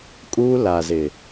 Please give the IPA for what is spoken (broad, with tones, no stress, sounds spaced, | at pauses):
kʼ uː˦ l a˨ z ɪ˨